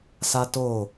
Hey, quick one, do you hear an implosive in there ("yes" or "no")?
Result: no